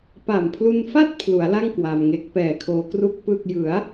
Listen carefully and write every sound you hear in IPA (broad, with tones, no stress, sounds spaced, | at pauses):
p a˨˩ m pʰ l u˧ n f a˥˩ t̚ pʰ l u˩˦ a̯ l a˥˩ ŋ k w a˧ m ŋ e˦˥ k̚ p ɛː˨˩ kʰ oː˧ k r u˥˩ k̚ p ɯ˥˩ k̚ j ɯ˩˦ a̯